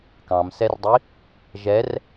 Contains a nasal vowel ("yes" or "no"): yes